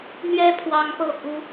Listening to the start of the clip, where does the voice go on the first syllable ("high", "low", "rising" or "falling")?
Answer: high